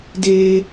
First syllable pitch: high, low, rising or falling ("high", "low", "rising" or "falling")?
high